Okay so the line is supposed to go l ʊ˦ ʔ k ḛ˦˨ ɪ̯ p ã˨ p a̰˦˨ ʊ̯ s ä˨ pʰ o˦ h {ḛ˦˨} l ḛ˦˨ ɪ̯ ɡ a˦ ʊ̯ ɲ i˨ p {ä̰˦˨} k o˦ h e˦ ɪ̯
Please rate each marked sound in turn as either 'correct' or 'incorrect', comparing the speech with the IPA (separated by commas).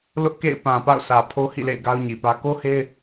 incorrect, incorrect